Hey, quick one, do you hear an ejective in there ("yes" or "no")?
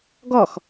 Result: no